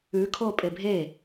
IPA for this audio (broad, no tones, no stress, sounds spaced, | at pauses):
ʉ kʰ o pʼ e bʱ e